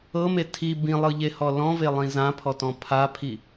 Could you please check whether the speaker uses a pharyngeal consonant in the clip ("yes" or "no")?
no